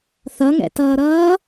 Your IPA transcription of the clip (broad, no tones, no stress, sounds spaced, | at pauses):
θ ʌ ŋ ɛ̰ t ʌː ɾ ʌː